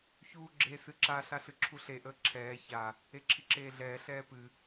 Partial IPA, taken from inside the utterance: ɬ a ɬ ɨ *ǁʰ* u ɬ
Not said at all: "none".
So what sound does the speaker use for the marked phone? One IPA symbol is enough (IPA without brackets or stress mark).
ǁʰ